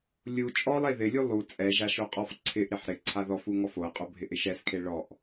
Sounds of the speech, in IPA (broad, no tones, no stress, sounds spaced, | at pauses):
lʲ u t͡ʃʼ ɔ lˠ e ð ɪ lʲ u lˠ u t͡sʼ ɛ ʒ a ʃ o qʼ ɔ f ǀʰ ɪ ʔ ɾ ɪ ħ ɾ ɪ ǀʰ a ð ɔ f u ŋ ɔ f o ɐ̯ qʼ o bʱ ɪ ʔ ɪ ʃ ɛ s kʰ e ɭ ɔ ʔ